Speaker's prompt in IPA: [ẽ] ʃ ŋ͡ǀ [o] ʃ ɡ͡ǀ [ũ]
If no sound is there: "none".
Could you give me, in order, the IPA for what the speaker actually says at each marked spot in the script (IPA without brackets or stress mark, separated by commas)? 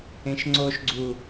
ẽ, o, u